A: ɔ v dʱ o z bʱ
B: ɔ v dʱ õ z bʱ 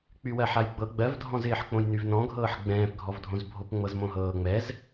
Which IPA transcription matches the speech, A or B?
B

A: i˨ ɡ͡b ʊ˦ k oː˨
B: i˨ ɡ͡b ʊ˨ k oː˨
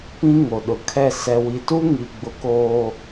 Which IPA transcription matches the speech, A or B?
B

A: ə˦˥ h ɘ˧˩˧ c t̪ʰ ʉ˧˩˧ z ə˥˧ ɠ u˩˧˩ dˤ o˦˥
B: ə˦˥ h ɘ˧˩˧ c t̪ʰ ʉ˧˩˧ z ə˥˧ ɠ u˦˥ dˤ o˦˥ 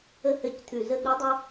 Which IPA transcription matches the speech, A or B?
B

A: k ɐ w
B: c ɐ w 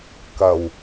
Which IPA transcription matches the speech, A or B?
A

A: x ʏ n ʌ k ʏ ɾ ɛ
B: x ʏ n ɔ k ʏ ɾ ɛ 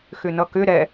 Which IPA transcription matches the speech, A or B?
A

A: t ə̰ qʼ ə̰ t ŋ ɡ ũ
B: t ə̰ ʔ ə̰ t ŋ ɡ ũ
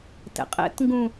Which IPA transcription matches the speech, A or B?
A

